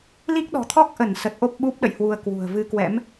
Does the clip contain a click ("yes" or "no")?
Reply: no